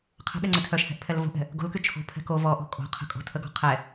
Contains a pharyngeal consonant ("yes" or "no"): no